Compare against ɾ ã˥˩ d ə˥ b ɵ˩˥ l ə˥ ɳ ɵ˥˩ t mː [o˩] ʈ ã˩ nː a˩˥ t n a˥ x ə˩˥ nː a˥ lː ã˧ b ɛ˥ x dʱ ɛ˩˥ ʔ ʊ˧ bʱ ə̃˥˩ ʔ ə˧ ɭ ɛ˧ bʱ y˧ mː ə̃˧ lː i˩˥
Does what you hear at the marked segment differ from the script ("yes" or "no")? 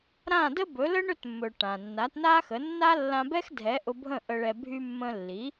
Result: yes